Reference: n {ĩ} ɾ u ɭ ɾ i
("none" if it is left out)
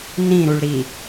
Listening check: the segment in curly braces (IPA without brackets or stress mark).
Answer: ĩ